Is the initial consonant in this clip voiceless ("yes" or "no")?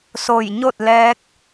yes